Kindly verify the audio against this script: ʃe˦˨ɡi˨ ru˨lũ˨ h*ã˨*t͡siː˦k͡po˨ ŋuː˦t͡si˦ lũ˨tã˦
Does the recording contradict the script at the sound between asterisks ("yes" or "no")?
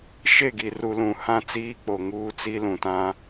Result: yes